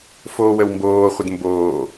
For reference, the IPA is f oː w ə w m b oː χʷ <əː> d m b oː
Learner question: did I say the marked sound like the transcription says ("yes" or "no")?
no